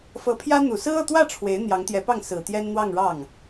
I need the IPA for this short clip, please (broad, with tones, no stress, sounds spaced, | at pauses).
f ɤ˧˥ pʰ j ä˥ n̪ u˨˩ s ɹ̩˥ ɤ˥˧ t̪ w ä˥˩ ʈ͡ʂʰ w e˧˥ ɪ̯ n̪ j ɑ˧˥ ŋ t̪ j ɛ˧˥ p ɑ˥˩ ŋ s ɹ̩˨˩ t̪ j ɛ˥ n n̪ w ɑ˥˧ ŋ ɻ ɑ˥˩ ŋ